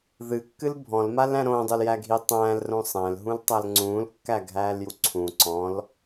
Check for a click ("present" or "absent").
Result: present